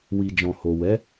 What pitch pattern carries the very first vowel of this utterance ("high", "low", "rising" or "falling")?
low